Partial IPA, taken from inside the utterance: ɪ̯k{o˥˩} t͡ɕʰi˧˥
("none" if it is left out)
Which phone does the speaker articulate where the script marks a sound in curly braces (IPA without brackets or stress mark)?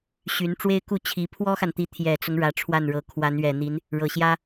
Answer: u˥˩